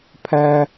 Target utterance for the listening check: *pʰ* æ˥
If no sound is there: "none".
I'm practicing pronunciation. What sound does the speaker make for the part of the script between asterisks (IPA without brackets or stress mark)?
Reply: pʰ